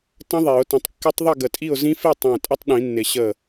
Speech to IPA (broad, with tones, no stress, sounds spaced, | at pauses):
t ə̃˦˥ ðˤ e˨˩˦ ʊ̯ t ə̃˨˦ tˤ kː ɪ˦˥ tˤ ðˤ i˥˨ ɡ ə˧˩ tʼ i˥˨ ʊ̯ z ĩ˦˥ f i˥˨ tˤ ẽ˧˩ tʼ ə˦˥ tˤ ɗ ĩ˨˩˦ nː ɪ˨˩˦ ɕ ə˧˩